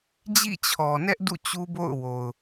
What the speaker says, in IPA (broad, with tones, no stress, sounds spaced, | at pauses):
d͡ʑ ḭ˦˨ t͡ɕʰ ɔ˨ n ɛ˦ ʔ d ṵ˦˨ t͡ɕ u˦ b o̰˦˨ ʊ̯ w o˨ ʊ̯